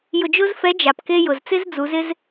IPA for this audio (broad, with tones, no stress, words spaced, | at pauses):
jʊ˧d͡ʒʊ˥z fɛ˧˥d͡ʒa˩p ke˥ jʊ˩zt͡sɪ˥zd͡zu˩˧z ɪ˥z